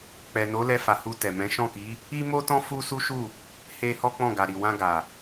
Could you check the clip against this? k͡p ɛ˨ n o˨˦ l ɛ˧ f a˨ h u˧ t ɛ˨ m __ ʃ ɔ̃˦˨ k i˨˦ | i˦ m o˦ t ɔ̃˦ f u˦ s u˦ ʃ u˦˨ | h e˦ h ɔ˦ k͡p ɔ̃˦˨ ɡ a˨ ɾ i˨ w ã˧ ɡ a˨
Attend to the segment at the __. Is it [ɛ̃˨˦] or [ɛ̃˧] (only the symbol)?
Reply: ɛ̃˨˦